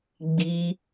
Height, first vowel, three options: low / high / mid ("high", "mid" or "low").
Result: high